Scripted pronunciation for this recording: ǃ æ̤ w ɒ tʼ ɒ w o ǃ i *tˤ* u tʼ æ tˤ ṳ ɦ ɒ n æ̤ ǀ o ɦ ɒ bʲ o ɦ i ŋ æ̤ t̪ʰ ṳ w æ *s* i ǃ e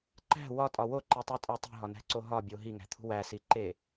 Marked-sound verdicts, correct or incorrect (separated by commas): correct, correct